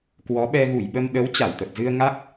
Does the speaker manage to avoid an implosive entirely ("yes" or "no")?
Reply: no